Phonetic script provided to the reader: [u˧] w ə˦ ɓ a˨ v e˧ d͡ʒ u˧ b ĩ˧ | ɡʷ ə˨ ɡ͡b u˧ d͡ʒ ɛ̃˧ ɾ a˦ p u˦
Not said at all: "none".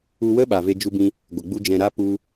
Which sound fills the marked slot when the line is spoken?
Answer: u˧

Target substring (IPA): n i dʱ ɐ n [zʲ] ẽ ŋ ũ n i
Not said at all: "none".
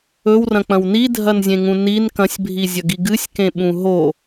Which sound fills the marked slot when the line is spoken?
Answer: zʲ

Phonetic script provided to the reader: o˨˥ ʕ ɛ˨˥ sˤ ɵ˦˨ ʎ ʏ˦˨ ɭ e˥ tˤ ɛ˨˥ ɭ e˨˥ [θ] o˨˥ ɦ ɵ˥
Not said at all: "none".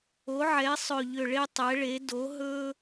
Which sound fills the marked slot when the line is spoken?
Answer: d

